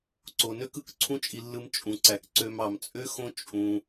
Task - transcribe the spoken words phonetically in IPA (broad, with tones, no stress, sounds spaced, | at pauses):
ǀ o˨ n ø˦ k ɯ˨ k ǀʰ ũ˦ t͡ʃʼ i˧ lː ɯ˧ m t͡ʃʼ ũ˨ ǀ æ˨ k ǀ ø˧ m ɑ˨ m t͡sʼ ø˦ x õ˦ t͡ʃʼ ũ˧